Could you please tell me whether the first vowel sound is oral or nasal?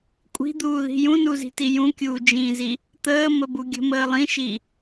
oral